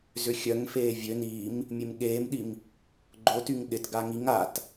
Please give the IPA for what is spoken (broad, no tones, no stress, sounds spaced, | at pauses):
z ʏ xʲ œ ŋ f eː vʲ ø n iː m | mʲ e m ɠ eː m ɗ i m | ɡ͡ǃ o t y ŋ ɗ ɪ t ɡ a ŋ i ŋ a t